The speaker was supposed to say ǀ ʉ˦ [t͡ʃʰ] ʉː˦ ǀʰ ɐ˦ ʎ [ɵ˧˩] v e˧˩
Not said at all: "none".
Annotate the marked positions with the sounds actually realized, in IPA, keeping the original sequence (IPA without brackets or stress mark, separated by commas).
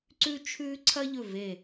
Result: t͡ʃʰ, ɵ˧˩